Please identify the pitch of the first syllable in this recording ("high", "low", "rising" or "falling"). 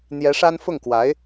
rising